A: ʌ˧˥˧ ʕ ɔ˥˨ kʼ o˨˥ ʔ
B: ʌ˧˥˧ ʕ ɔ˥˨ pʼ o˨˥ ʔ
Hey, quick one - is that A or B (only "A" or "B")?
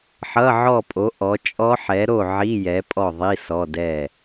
B